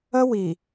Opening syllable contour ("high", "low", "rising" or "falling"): high